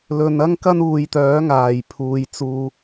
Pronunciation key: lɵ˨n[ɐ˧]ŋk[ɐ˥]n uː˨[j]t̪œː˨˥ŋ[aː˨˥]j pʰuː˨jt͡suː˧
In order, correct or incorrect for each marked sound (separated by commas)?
incorrect, correct, correct, incorrect